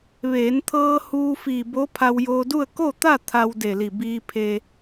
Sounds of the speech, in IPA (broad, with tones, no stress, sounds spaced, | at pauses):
ʋ eː˩˧ n t̪ʰ ɤː˧ h uː˧ f iː˧˩ b o˧˥ pʰ a˧ w j oː˧ d u˥˨ ə̯ k o˥˨ t̪ a˥˨ t̪ʰ a˧ w d e˧˩ l i˧˩ b iː˧ pʰ e˧